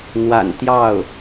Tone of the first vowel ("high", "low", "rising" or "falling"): low